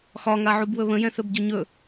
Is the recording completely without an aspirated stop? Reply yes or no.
yes